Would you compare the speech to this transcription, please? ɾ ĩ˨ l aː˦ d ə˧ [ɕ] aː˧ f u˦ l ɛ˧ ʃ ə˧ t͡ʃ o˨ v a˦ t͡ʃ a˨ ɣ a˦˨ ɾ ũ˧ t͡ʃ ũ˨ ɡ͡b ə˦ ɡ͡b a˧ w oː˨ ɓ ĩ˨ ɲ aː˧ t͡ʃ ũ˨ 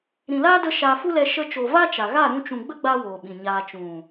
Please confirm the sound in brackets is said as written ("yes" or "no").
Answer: no